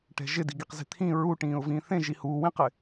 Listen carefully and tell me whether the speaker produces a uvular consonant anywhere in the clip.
yes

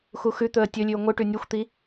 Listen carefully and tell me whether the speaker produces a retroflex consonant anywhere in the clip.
yes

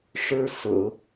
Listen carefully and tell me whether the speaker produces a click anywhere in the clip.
no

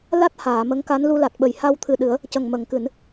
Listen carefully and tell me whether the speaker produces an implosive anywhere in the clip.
yes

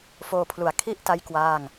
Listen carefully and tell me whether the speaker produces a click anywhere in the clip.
no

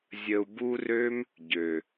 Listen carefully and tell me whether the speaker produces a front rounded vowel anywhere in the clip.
yes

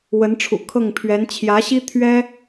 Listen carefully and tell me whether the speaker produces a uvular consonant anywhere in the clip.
no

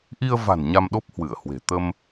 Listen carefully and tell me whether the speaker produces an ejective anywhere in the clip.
no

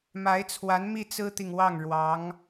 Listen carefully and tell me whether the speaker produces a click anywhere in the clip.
no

